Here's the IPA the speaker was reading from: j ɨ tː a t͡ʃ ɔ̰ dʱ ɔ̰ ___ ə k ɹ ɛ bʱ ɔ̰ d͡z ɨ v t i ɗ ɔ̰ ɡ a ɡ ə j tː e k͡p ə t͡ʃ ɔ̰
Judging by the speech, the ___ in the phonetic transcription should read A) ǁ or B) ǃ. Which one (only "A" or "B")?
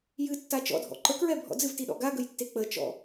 B